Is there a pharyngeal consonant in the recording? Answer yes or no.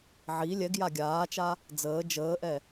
yes